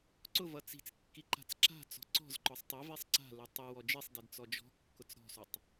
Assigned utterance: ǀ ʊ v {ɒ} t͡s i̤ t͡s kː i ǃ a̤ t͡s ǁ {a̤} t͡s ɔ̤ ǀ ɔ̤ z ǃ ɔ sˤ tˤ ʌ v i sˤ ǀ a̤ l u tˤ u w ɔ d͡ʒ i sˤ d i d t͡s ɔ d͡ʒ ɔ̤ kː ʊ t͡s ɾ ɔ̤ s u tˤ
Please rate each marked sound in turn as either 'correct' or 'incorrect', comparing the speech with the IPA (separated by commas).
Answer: incorrect, correct